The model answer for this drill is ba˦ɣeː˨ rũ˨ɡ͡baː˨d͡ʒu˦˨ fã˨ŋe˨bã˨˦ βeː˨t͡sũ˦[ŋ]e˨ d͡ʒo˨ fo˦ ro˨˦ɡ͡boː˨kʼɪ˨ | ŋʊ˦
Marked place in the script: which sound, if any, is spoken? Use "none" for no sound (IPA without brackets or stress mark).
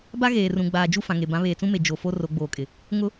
m